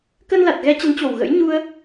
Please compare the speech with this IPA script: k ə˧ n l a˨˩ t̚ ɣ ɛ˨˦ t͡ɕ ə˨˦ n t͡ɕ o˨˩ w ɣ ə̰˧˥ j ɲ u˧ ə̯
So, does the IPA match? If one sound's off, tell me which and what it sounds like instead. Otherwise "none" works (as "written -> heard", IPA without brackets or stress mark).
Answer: none